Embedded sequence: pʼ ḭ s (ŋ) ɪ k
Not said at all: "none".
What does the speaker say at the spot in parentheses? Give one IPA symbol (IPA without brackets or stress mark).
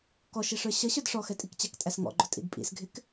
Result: ɡʱ